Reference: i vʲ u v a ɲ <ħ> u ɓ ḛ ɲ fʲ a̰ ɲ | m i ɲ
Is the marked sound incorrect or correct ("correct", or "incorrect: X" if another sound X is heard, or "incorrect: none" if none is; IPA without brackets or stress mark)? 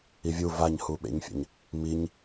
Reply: incorrect: h